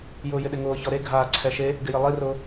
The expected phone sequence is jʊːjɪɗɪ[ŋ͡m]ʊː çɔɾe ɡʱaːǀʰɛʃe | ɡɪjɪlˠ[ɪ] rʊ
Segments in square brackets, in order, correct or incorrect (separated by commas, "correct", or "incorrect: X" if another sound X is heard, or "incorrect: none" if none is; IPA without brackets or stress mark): incorrect: ŋ, incorrect: i